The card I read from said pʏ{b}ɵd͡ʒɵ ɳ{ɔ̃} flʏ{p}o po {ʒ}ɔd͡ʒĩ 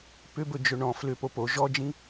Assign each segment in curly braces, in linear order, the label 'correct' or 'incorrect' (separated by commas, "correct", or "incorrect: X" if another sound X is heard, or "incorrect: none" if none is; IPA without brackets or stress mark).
correct, correct, correct, correct